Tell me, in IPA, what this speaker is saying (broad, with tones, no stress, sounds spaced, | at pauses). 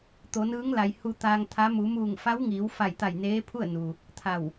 t̪ o˩˧ n ɯː˧˥ ŋ l a˩ j h u˧ t̪ aː˧ ŋ t̪ʰ a˧˥ m u˩˧ m uː˧˩ ŋ f a˧˥ w ŋ iː˩˧ w f a˧˩ j t̪ a˧˩ j n eː˧˥ pʰ u˥˨ ə̯ n u˩ | t̪ʰ a˧˩ w